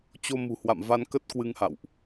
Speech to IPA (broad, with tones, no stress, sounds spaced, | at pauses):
t͡ɕ o˧ m ṳ˨˩ h w a̰˧˨ m v a˧ n k ə˦˥ t̚ k w ɨ˧ ŋ h a̰˧˨ w ʔ